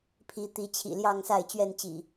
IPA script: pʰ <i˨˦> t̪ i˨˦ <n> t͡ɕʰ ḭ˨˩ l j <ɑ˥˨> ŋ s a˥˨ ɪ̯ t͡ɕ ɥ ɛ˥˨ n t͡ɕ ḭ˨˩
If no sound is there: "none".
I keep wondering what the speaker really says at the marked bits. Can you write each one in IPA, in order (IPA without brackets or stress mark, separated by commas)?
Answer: i˨˦, none, ɑ˥˨